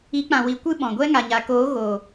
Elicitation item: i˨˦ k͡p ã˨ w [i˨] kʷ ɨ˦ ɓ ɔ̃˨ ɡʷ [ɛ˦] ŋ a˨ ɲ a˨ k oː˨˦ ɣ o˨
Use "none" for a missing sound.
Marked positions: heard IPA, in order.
i˨, ɛ˦

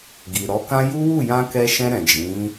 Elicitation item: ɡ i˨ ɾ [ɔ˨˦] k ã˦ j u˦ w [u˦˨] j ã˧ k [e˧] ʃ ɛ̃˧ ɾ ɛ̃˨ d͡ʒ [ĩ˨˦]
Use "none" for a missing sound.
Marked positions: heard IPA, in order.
ɔ˨˦, u˦˨, ɛ˧, ĩ˨˦

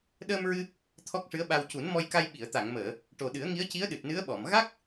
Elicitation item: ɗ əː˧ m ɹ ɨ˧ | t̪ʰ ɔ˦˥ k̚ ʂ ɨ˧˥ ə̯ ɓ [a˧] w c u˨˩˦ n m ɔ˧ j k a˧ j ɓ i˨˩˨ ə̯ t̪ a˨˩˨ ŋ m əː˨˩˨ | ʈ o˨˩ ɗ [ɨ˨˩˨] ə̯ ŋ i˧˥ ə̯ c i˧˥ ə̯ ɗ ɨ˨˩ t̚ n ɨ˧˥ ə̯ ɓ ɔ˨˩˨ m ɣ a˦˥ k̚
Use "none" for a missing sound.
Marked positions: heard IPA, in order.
a˧, ɨ˨˩˦

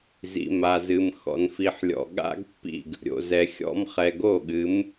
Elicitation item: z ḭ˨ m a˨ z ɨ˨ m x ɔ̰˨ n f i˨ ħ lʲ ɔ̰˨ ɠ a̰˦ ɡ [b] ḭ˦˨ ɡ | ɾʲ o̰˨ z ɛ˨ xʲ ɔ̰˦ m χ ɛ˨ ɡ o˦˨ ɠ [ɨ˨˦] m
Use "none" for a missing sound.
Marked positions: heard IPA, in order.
pː, ɨ˨˦

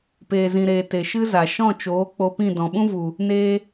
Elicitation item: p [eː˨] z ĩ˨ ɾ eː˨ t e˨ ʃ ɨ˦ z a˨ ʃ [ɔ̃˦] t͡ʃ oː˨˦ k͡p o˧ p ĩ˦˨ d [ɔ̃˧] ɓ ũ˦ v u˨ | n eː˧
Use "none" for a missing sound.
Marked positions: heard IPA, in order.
eː˨, ɔ̃˦˨, ɔ̃˨

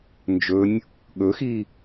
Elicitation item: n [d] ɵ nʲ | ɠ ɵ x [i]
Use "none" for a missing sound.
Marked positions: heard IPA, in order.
d͡ʒ, i

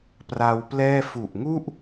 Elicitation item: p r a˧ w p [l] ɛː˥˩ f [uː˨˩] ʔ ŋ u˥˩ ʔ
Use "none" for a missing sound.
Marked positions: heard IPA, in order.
l, u˨˩

